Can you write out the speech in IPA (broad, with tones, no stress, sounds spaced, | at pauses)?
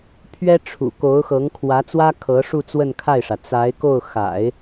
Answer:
pʰ ɥ ɛ˥ ʈ͡ʂʰ ṵ˨˩ k o˧˥ ʊ̯ x ɤ˧˥ ŋ kʰ w ä˧˥ t͡s w ä˥ kʰ ɤ˧˥ ʂ u˥˧ t͡s w ə˥˧ n kʰ a˥˩ ɪ̯ ʂ ä˩ t͡s a˧˥ ɪ̯ k o˥˩ ʊ̯ x a̰˨˩˦ ɪ̯